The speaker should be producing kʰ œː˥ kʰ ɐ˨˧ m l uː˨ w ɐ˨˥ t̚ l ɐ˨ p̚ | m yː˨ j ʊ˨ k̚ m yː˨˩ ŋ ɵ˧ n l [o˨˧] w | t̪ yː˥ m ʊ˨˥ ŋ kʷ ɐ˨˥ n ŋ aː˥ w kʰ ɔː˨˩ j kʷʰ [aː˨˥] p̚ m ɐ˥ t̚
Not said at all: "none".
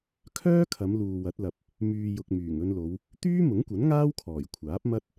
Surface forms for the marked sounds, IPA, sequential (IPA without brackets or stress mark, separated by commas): o˨˧, aː˨˥